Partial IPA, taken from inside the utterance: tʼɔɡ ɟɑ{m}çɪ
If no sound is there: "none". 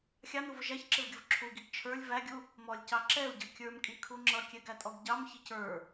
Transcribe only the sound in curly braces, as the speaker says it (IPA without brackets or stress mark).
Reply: m